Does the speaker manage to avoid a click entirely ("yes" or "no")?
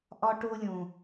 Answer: yes